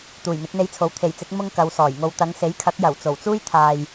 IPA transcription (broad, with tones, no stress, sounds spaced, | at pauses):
t̪ uː˨˩ j n̪ ɪ˨˥ k̚ n̪ e˧ j t͡sʰ o˨˥ w t̪ʰ e˨˩ j t͡s ɪ˨˥ k̚ m ʊ˥ ŋ k ɐ˨˧ w s ɔː˨˩ j ŋ o˧ w t̪ ɐ˨˧ ŋ s e˨˥ j kʰ ɐ˨˥ k̚ j ɐ˨˩ w t͡s o˨˩ w t͡s uː˥ j t̪ʰ aː˨ j